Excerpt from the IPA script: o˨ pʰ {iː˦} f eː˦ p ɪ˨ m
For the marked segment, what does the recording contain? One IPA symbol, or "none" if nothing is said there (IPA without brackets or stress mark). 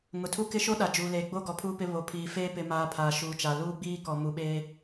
iː˨